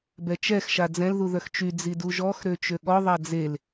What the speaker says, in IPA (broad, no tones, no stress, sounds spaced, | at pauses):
b ɛ t͡ʃ ɛ x ʃ a d͡z ɛ̃ l ð u ð œ x t͡ʃ y d͡z i d u ʒ ɔ x ɾ ø t͡ʃ ø ɠ ɔ ðˤ a d͡z e l